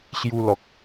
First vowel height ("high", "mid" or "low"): high